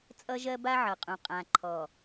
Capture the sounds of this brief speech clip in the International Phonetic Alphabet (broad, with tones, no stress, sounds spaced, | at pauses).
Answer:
t͡sʼ ʌ˦ ʒ ɜ˦ b a˦ ʕ ʌ˨ qʼ ũ˨ qʼ ã˨ ǃʰ ɔ˨